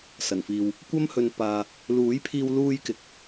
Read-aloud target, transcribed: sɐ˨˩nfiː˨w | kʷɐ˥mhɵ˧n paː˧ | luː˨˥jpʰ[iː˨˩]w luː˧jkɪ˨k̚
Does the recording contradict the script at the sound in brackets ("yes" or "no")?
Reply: yes